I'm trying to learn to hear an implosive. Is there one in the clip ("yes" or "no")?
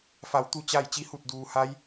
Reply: no